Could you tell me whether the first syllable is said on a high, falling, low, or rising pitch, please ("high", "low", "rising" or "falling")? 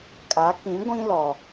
rising